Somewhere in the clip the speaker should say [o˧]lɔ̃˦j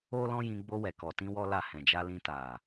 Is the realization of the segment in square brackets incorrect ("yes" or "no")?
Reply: yes